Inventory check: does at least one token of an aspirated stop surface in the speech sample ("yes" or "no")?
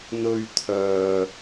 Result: yes